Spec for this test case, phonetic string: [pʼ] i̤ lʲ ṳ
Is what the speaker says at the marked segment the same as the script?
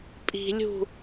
yes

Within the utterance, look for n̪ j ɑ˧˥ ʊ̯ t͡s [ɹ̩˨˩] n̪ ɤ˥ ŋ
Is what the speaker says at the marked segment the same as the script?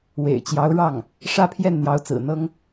yes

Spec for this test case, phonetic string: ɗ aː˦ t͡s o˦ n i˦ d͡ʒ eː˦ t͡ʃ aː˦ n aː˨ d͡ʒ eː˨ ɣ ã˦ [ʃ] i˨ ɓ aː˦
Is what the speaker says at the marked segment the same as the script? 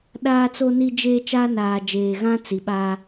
no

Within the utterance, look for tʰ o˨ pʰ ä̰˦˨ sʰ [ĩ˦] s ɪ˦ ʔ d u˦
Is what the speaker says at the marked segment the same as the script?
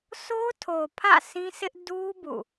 yes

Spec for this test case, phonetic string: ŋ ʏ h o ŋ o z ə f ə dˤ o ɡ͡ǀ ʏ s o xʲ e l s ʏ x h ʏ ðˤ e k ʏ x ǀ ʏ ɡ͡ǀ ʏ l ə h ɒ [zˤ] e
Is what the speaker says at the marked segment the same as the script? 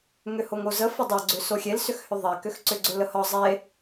yes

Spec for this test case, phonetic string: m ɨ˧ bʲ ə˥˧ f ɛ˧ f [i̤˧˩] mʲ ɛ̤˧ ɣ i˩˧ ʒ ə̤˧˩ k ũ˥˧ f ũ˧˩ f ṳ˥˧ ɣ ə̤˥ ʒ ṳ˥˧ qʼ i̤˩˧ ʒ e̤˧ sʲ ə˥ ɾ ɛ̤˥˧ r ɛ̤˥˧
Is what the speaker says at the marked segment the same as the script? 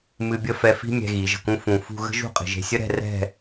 no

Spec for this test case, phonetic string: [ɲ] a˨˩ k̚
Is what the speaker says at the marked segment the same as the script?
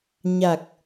yes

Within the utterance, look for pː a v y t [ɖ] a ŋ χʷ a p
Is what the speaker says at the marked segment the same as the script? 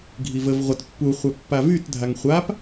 no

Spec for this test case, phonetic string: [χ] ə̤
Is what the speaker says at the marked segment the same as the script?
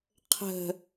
no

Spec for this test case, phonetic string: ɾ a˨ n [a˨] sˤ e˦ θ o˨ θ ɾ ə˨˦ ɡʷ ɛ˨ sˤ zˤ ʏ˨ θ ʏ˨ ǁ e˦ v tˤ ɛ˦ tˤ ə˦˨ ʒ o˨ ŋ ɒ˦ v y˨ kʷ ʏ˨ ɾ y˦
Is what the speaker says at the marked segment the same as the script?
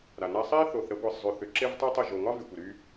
no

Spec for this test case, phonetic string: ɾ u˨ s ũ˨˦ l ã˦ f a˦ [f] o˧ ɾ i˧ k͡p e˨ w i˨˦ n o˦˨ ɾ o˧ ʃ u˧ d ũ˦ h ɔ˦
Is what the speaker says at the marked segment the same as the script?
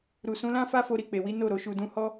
yes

